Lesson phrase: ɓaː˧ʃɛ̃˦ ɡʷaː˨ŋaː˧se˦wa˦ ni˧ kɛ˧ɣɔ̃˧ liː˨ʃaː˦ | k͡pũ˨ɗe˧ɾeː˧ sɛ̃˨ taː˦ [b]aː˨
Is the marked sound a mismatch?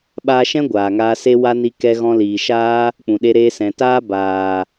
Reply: no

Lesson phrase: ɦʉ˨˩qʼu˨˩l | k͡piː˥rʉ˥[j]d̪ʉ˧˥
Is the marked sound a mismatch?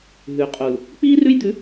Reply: no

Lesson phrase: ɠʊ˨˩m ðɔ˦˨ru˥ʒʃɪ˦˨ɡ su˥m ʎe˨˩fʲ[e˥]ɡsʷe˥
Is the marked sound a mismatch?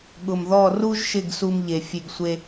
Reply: yes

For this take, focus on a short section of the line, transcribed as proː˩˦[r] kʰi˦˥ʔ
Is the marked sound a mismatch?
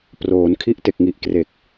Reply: yes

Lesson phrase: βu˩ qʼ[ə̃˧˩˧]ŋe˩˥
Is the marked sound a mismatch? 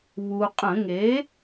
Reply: no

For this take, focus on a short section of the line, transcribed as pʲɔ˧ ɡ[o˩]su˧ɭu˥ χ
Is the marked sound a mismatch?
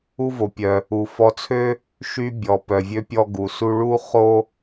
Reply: yes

